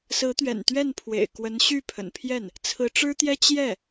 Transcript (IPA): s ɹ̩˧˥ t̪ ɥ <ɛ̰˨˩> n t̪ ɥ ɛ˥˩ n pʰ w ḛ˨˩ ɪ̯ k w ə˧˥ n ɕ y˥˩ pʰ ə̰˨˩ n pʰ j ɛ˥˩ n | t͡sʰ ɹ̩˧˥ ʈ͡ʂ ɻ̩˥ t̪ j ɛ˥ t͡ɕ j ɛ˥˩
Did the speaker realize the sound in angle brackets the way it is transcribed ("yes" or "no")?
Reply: yes